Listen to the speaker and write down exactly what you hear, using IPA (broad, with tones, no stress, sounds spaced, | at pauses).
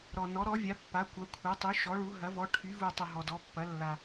ɾ ɔ˩ n ɔ˩˧ ɾ ɔ˩˧ vʲ a˩˧ pː a˩˧ kʷ ɐ˩˧ kʷʰ ɐ˩˧ tˤ y˩˧ ʃ ɔ˩˧ ɭ u˩˧ ɦ ɐ˩˧ v ɔ˩˧ ʈʰ y˩˧ v u˩ tˤ ə˩ ɦ ɔ˩ d ɔ˩˧ pː ɐ˩˧ lː a˩